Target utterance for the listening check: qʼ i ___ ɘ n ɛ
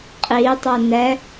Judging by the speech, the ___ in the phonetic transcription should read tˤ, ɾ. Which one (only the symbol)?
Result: tˤ